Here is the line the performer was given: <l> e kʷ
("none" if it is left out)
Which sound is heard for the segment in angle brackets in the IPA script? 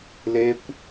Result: l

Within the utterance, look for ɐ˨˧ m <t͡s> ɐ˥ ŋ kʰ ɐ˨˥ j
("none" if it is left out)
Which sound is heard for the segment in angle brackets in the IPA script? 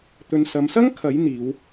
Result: s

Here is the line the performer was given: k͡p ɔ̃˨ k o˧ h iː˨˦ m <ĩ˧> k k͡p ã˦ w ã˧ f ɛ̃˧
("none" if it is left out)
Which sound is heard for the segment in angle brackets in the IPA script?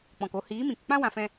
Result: ĩ˨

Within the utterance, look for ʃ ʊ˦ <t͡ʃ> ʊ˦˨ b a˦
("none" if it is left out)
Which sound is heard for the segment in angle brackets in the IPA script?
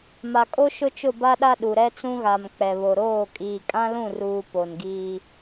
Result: t͡ʃ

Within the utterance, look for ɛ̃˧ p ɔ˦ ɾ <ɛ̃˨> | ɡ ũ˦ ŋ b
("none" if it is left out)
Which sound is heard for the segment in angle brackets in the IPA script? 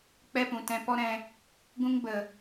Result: ɛ̃˧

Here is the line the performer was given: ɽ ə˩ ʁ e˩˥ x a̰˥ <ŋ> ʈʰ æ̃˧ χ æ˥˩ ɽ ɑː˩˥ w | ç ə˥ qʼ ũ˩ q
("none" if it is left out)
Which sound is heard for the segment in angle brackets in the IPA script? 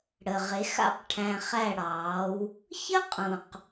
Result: q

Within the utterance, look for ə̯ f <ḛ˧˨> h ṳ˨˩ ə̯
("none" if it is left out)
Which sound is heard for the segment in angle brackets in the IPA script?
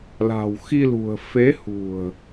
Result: e˨˦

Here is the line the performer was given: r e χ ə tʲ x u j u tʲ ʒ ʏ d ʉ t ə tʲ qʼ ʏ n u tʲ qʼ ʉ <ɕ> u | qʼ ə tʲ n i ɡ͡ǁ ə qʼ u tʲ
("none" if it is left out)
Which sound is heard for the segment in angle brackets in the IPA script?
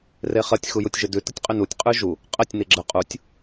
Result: ʒ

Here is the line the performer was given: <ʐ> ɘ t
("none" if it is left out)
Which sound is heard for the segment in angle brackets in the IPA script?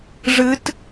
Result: ʐ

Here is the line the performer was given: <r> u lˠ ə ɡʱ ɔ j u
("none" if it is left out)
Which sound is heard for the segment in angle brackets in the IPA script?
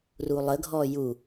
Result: r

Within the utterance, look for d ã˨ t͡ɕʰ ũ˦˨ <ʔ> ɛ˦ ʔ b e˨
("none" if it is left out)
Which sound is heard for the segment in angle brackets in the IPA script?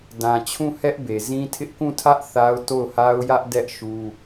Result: h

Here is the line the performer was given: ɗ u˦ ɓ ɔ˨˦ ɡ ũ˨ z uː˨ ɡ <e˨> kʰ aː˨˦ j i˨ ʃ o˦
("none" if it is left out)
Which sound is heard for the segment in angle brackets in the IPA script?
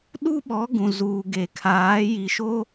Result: e˨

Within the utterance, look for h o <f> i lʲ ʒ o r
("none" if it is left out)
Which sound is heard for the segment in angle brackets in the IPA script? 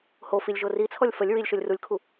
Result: f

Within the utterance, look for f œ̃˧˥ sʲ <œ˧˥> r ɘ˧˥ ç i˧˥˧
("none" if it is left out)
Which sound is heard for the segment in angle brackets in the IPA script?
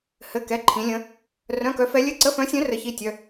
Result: œ̃˧˥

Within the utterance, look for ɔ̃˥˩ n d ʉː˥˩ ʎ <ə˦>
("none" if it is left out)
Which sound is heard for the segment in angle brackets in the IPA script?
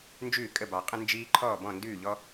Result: ɔ˦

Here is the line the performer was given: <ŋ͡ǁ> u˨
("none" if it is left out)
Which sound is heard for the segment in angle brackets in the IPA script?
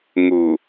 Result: ŋ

